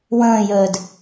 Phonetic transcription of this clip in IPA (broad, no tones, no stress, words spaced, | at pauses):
wə̃ːjəːd